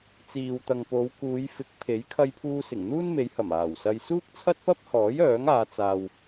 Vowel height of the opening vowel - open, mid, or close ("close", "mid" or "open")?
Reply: close